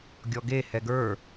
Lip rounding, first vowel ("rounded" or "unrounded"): rounded